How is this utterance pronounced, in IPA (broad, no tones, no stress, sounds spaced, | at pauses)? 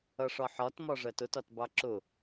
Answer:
ʌ ʂ ɒ ħ ɒ t m ɒ ʐ ɜ t ʊ t ɒ t b ɑ ǁ ʊ